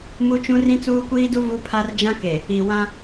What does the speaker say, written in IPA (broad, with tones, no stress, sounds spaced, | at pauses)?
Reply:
m u˦ t͡ʃ ũ˦ r ĩ˦ t͡s uː˦ kʷ iː˦ d u˦ v u˦ pʰ a˦ r d͡ʒ ã˦ k e˨ | i˨ w ã˦